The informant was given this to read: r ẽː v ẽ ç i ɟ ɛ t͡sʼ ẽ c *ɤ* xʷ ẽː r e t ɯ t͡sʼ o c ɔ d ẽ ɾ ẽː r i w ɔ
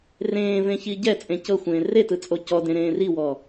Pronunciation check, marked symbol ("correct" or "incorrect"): correct